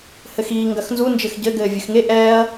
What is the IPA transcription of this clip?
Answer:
h ɘ x iː ŋ ɡ ɐ x n z u n d͡ʒ ɘ x ɟ ɘ ɡ ɘː vʲ ɨ x ŋ e ʔ ɛː ɐ̯

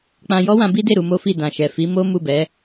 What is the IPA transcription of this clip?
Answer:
k͡p ã˧ j ɔ˦ w ã˧ b i˦ d e˦˨ ɾ u˧ m o˦ f i˦˨ d ã˨ ʃ ɛ˨ f i˨˦ m o˦ m u˦˨ b ɛ˨˦

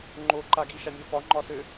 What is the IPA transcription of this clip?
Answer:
ŋ͡ǃ o ǃ a ɡ i ʃ a mʲ o f ɒ ŋ͡ǃ ɒ s ø

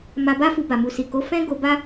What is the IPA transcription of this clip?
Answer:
m a˧ b a˦ f u˧ b a˨ m u˨ s i˨ k o˨˦ f ɛ̃˦ ɡ o˧ b a˦

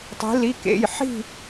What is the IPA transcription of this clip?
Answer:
tˤ i̤˧˥ l i˧˥˧ k ḛ˧˥˧ j ħ i̤˥˧

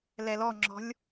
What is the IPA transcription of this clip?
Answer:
l ɛ l ɔ ŋ͡ǁ ɔ̤ lʲ

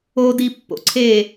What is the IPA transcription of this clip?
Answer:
o d i pː o̰ ǀʰ e

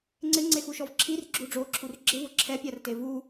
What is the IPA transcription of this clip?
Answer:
ŋ͡ǀ ɪ ŋ͡ǀ e x u ʃ ɔ v ǁʰ i r ɡ͡ǁ u ɖ͡ʐ o ǁʰ u r ɡ͡ǁ ɪ v ʊ ǁʰ ɛ pʲ a r t e v u

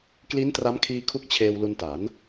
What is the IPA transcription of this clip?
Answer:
k l i˦˥ n t r a˦˥ m kʰ iː˧ kʰ u˦˥ k̚ t͡ɕʰ eː˧ w l u˧ n t a˩˦ n

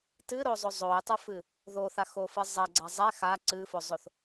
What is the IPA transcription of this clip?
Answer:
t ɨ ɾ o zˤ o zˤ o j tˤ ɨ f ɨ | ð o θ a x o f ɨ zˤ ɛ ɡ͡ǀ a zˤ ɛ x a ǀ ɨ f o zˤ o θ

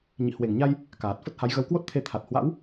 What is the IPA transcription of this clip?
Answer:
ɲ ḭ˧˨ h w e˧˩ ŋ ɲ a˧ j | k aː˨˩ t̚ f ə˦˥ t̚ h a˨˦ j ɣ ə˨˦ w k w o˦˥ t̚ t̪ʰ e˧ t̪ʰ a˨˩ t̚ h w a̰˧˥ w

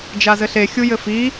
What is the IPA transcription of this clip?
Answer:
d͡ʒ a z ɘ ɬ e xʲ u j ɘ f i

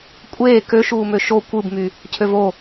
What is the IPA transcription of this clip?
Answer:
kʷʼ eː k ø ʃ uː m ø ʃ o kʷ ɯ b m y | cʰ ø v o

